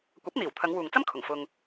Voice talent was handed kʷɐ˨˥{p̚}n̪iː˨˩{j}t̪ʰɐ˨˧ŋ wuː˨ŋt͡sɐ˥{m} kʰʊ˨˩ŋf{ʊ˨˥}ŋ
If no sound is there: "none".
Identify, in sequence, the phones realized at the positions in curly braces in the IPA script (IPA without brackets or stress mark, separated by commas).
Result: p̚, w, m, ʊ˧